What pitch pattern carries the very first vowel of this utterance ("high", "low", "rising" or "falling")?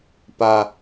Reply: high